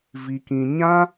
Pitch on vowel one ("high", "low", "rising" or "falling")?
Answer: low